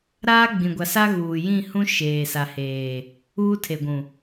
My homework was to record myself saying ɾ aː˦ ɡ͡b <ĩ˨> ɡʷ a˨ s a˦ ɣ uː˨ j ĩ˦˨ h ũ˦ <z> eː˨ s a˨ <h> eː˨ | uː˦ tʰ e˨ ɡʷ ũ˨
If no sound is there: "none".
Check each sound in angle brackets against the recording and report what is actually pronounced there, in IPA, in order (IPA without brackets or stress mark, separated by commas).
ĩ˨, ʃ, h